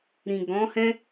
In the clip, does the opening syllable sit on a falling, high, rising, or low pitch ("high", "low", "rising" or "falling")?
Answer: low